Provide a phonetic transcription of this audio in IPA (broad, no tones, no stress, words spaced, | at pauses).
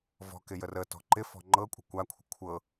vɔ̤kɪ jərətɔ̤ ǃɪ fɔ̤ŋ͡ǃɤkʷʼə̤ kʷakʷʰə̤ kʷʰɤ